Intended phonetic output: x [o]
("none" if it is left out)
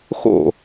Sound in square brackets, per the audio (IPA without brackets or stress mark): o̰